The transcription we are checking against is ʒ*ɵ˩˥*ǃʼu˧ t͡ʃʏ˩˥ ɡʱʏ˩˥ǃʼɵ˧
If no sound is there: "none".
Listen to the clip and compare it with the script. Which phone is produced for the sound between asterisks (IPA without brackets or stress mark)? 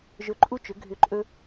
ɵ˩˥